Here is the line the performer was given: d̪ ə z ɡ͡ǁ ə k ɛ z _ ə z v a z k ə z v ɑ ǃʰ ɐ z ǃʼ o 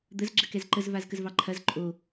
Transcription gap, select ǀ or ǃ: ǃ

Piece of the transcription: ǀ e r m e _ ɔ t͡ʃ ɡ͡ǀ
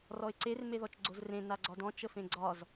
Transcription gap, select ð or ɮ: ð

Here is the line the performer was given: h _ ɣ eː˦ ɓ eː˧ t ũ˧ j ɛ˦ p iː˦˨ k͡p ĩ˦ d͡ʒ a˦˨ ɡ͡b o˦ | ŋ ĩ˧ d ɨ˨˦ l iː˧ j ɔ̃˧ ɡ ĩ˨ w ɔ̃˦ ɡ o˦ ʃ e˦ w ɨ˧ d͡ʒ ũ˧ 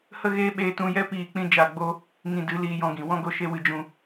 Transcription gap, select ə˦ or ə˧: ə˦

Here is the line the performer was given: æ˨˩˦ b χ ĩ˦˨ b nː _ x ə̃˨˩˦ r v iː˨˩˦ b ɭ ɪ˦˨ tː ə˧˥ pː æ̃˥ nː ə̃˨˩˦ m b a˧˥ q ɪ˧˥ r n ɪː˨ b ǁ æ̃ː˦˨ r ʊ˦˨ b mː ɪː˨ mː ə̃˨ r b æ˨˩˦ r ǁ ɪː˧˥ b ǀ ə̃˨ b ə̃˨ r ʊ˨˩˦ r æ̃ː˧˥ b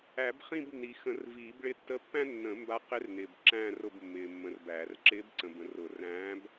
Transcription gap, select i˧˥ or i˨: i˨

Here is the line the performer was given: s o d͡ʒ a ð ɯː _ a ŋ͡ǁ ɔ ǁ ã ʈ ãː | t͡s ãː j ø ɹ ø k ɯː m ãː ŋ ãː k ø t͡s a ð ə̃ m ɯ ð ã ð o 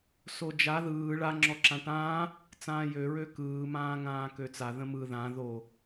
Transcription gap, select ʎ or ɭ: ɭ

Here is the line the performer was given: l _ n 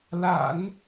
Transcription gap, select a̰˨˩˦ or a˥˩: a̰˨˩˦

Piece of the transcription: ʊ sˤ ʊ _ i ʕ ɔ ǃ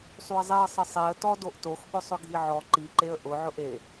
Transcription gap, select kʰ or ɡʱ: ɡʱ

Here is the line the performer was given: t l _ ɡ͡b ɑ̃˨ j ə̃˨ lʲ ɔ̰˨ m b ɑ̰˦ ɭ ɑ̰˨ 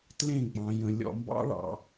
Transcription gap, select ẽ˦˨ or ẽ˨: ẽ˦˨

